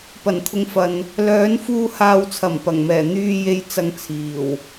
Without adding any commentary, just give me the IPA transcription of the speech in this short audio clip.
p ɐ˨˩ n t̪ʰ ʊ˨ ŋ f ɐ˨ n | l œː˨˧ n f uː˧ h aː˨ w t͡sʰ ɐ˨˩ m p ɐ˨˩ ŋ m ɛː˨˩ n̪ yː˨ j e˨ j t͡s ɐ˧ ŋ t͡sʰ iː˨˩ w

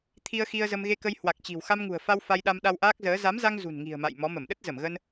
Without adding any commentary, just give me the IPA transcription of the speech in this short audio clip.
t̪ʰ i˧ ə̯ x i˧ ə̯ z ə˧ m ɣ e˧ k ə˧ j h w a˨˩ k̚ t͡ɕ i̤˨˩ w x a˧ m ŋ ṳ˨˩ ə̯ f a˧ w f a˧ j ɗ a˧ m ɗ a˧ w ʔ aː˦˥ k̚ z əː˨˦ z a˨˦ m z a˧ ŋ z ṳ˨˩ n ŋ i̤˨˩ ə̯ m a̰˧˨ j m ɔ˨˦ m ə˧˩ m ɗ ə˦˥ t̚ z ə˧˩ m ɣ ə˧ n

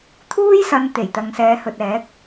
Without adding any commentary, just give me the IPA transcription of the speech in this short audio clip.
t̪ʰ uː˥ j s ɐ˨˧ n t̪ e˨˩ j t̪ ɐ˨ ŋ s ɛː˨˧ h ɵ˨ t̚ ɛː˨˥ k̚

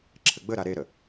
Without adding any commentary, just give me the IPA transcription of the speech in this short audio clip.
ǁʰ ɘ ɡ͡b ə ɾ a ɾ e ɾ ə

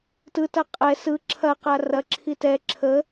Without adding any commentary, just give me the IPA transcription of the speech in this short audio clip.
t ɯ t ɐ qʼ ɛ s ɯ ǁʰ ɐ q a r ɐ ǁʰ i t ɛ ǁʰ ə

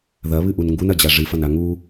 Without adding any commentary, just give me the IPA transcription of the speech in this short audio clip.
ð ɐ β ɨ ʔ u n ŋ ɡ u n ɐ d͡ʑ a ʐ ɨ f ɐ n a ŋ u

